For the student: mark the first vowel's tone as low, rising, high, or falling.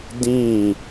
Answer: falling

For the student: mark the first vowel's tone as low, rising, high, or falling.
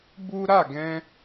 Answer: high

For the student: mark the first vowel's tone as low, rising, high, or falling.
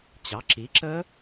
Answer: rising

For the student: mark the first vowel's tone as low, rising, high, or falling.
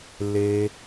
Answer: low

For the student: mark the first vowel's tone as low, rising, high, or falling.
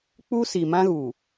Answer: high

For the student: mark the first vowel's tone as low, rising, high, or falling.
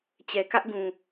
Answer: low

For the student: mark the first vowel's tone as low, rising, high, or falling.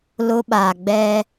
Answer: high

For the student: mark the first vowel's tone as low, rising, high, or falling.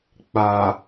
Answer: low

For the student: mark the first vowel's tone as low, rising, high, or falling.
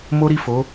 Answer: high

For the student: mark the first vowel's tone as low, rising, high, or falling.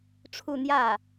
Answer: falling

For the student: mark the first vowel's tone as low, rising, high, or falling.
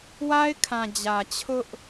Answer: high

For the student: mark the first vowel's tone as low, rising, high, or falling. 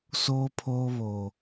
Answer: high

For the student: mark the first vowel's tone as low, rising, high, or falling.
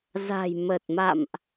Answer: low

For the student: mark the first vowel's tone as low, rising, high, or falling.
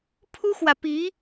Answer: high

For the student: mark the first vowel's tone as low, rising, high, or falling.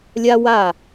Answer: high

